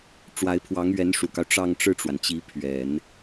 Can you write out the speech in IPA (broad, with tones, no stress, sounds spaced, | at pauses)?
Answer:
ʈ͡ʂ w a˧˥ ɪ̯ pʰ w ɑ˧˥ ŋ ɥ ɛ˧˥ n ʂ u˨˩ k ɑ˦ ʊ̯ ʈ͡ʂ ɑ˥˧ ŋ ʈ͡ʂ ɻ̩˥˩ ʈ͡ʂ w a˩ n t͡ɕ i˧˥ pʰ ɥ ɛ˨˩˦ n